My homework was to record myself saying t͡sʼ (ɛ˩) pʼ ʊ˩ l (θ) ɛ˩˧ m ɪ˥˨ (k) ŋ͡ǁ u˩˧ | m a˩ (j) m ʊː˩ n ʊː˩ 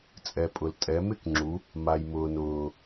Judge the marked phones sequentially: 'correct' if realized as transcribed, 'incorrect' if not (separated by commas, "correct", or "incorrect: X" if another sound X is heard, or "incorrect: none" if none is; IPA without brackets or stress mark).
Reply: correct, incorrect: tʼ, correct, correct